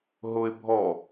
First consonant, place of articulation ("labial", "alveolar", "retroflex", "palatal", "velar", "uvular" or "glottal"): glottal